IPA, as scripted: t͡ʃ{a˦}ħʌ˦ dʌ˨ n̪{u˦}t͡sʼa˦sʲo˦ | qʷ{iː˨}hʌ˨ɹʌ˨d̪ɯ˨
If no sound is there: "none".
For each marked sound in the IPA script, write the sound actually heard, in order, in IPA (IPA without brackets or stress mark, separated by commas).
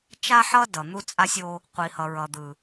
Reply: a˦, u˦, i˨